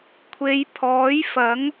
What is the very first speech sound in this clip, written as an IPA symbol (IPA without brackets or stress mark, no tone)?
kʷʰ